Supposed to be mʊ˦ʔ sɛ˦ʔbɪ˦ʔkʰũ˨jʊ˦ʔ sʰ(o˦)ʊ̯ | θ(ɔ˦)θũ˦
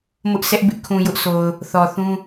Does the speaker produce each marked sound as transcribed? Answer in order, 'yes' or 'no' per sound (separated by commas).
no, no